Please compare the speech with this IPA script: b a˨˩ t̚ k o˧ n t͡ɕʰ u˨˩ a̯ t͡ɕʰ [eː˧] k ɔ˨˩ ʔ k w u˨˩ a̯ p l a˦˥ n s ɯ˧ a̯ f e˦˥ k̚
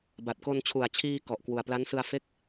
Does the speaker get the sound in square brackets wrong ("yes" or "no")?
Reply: yes